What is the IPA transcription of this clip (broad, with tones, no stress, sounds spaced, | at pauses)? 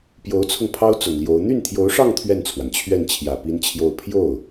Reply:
p j o˧˥ ʊ̯ t͡sʰ ʊ˧ ŋ pʰ ɑ˥ ʊ̯ t͡s ʊ˨˩ ŋ l j o˧˥ ʊ̯ n̪ y˥˩ n t̪ʰ j o˧˥ ʊ̯ ʂ ɑ˥˧ ŋ t̪ʰ ɥ ɛ˥˩ n t͡sʰ w a˩ n t͡ɕʰ ɥ ɛ˥˩ n t͡ɕʰ j ä˨˩ p i˥ n t͡ɕʰ j o˥˧ ʊ̯ pʰ j o˥˩ ʊ̯